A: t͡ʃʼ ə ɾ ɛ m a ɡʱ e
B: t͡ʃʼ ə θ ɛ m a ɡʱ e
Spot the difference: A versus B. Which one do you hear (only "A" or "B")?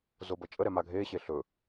A